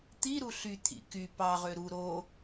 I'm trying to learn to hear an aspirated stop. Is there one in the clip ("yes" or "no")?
yes